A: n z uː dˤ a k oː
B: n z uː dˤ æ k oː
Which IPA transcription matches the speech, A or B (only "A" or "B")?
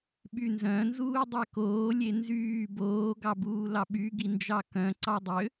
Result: B